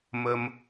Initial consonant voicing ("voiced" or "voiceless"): voiced